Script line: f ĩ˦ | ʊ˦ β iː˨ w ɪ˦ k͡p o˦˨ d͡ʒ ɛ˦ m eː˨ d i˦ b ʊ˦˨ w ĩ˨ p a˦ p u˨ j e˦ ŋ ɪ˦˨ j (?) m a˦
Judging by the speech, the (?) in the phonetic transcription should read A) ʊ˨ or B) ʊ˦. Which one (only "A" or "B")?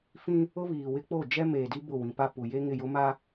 B